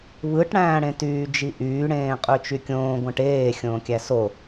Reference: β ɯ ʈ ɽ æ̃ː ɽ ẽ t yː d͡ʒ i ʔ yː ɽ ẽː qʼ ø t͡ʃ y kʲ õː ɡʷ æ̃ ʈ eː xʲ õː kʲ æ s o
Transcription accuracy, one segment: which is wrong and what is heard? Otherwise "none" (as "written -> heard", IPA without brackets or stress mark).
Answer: none